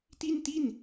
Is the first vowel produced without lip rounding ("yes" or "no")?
yes